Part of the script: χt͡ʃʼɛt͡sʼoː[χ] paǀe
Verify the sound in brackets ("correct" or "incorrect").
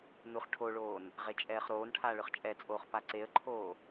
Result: correct